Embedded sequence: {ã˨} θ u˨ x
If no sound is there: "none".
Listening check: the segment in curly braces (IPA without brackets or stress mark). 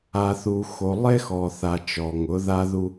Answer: a˨